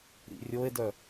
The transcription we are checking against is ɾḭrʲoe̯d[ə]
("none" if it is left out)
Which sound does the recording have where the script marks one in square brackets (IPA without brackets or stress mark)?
œ